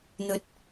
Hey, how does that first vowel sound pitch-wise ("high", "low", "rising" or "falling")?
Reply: rising